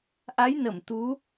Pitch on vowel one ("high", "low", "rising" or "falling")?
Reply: rising